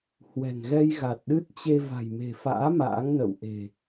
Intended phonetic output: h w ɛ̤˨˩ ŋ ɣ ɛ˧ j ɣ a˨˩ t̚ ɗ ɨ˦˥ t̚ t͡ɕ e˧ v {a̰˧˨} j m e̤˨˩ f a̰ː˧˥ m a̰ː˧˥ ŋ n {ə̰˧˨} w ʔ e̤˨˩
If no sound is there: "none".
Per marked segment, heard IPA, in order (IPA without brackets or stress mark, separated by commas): a̤˨˩, ə̰˧˨